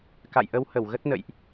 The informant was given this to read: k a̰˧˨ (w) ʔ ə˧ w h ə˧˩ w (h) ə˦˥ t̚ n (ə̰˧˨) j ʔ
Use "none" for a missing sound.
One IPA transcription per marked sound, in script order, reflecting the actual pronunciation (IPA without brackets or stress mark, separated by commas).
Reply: j, ɣ, ə̰˧˨